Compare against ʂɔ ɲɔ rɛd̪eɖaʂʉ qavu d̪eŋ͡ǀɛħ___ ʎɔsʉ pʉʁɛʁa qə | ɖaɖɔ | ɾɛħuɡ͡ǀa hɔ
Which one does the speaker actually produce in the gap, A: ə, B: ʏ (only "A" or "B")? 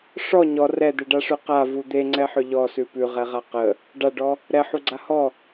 B